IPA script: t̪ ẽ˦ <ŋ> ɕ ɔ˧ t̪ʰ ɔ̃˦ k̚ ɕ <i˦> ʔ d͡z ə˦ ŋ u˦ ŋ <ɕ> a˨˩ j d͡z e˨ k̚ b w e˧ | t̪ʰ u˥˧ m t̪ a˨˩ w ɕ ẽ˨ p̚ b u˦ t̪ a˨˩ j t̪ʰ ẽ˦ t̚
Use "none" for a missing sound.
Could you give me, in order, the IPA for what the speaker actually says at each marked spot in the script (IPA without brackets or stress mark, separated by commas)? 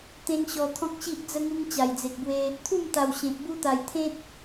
ŋ, i˦, t͡ɕ